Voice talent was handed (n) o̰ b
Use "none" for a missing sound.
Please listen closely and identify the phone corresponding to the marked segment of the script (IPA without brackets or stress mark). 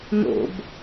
n